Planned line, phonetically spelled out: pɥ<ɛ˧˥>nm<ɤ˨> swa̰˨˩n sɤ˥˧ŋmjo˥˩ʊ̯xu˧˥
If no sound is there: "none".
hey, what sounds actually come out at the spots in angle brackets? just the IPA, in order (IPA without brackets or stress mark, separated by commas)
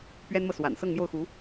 ɛ˥, ɤ˨